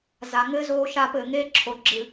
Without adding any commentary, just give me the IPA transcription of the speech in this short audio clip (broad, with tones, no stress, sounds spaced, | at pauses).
z a˨ ŋ ɘː˦ z oː˦ ʃ aː˦ p ɘː˨ ŋ eː˦ ǁʰ o˨ ɡ͡ǁ ɨ˨